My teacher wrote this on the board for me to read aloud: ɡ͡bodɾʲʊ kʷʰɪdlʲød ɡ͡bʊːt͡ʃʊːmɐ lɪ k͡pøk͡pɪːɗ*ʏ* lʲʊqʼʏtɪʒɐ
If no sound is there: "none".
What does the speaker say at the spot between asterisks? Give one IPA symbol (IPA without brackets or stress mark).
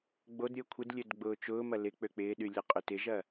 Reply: y